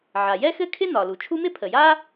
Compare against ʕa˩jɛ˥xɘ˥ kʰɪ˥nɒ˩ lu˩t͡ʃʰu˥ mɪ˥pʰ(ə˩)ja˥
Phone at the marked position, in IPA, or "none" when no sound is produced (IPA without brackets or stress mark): ə˩